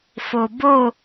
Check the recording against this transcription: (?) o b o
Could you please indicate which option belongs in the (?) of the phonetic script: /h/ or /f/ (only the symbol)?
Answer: f